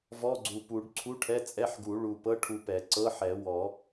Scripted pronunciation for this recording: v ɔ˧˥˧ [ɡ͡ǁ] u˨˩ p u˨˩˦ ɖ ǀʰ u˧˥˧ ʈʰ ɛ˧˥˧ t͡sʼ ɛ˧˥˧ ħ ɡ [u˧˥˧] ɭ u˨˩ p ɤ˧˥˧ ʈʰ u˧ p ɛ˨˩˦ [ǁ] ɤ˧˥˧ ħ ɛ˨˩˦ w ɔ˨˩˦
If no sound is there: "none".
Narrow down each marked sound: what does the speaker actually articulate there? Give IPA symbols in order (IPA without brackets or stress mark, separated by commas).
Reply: ɡ͡ǀ, u˨˩˦, ǀ